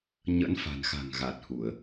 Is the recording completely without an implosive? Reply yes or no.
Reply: yes